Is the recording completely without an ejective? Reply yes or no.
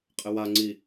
no